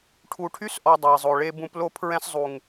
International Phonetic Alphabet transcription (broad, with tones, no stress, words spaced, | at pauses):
ʈʰu˨ʈʰy˦sʔɔ˨ dˤo˨i̯zˤo˨ɭe˦ bũ˦p lo˦pʰɹɛ̃˦szˤu˨ŋ